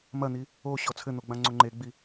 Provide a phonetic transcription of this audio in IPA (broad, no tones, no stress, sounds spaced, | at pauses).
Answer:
m ɐ n̪ i | o ɕ ɔ t͡sʰ ɘ n̪ o ɡ͡b ã ŋ͡ǀ o ŋ͡ǃ e ɡ͡b i